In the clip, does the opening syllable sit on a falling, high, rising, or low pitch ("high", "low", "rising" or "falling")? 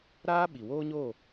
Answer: high